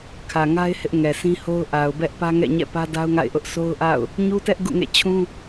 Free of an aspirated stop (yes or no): no